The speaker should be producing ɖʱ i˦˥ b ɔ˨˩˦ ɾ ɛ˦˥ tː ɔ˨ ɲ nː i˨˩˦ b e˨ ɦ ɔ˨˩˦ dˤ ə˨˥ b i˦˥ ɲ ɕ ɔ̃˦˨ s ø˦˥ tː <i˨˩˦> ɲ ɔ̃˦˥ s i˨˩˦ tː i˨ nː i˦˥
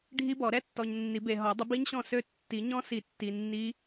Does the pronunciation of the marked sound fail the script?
no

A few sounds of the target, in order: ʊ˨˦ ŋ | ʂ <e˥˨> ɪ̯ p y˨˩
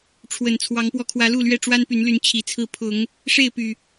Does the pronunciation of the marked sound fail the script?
no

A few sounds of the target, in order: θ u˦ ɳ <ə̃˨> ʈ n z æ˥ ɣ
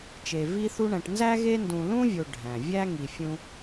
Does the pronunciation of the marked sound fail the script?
yes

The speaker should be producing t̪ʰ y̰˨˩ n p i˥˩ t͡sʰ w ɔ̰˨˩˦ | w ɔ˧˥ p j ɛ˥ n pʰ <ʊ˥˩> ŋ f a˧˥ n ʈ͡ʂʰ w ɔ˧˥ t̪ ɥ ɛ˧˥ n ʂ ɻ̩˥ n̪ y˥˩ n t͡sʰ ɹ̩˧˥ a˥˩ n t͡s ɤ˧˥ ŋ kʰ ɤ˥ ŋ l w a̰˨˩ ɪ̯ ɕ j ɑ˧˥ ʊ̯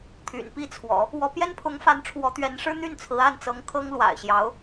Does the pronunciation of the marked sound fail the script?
yes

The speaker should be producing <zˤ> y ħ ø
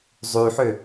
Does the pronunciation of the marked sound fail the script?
no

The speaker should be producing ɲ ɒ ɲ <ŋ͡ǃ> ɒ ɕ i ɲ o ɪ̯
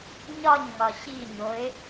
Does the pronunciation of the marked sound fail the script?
yes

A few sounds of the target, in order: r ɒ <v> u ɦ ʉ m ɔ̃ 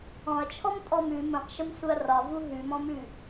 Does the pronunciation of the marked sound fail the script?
no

